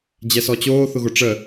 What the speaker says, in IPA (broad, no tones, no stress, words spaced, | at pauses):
d͡ʑɛsɔt͡ɕoː θʊɣʊʈ͡ʂə